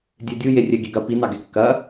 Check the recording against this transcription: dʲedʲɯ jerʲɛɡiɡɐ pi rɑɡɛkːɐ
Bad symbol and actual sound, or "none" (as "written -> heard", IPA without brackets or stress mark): r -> n